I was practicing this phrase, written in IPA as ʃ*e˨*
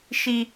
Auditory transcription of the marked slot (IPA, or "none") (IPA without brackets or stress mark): i˨